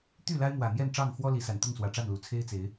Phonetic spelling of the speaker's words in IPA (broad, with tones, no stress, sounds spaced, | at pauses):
t̪ y˥˨ l a˦ ɪ̯ m w ä˨˩ n̪ j ɛ˥˨ n ʈ͡ʂ ɑ˥˨ ŋ x w ɔ˦ l i˨˦ s a˨˩ n t̪ ʊ˥˨ ŋ s w ä˨˩ ʈ͡ʂ a˥˨ n l u˨˩ t͡sʰ e˦ ɪ̯ t͡s e˨˦ ɪ̯